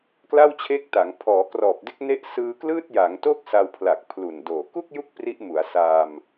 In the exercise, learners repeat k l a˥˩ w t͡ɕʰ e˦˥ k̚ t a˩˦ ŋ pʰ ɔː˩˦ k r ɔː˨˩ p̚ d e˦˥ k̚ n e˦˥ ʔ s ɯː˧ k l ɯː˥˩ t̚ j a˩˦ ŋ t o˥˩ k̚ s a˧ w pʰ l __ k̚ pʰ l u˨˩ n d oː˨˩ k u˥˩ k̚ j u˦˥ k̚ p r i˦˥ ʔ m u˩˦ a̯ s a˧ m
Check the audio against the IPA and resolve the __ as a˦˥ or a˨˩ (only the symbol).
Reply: a˨˩